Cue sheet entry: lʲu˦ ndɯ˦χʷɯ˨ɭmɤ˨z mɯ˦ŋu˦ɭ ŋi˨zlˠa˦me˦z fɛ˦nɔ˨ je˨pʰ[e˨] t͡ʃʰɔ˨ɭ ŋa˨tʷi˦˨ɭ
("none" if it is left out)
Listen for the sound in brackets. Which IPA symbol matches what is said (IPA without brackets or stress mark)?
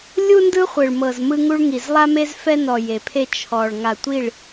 e˦